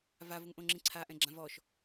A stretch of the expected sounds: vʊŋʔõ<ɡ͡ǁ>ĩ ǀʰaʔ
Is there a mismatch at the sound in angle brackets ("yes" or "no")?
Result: yes